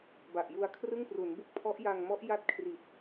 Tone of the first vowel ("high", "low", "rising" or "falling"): low